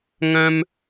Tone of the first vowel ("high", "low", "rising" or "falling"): high